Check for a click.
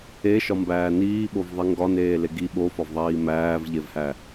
absent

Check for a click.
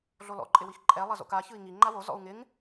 present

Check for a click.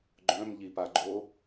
present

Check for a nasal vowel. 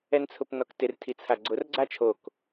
absent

